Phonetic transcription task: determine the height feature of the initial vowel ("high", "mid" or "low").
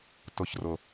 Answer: high